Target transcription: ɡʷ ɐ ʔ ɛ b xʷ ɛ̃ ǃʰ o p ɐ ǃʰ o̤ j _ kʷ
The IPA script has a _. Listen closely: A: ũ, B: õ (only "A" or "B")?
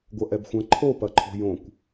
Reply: B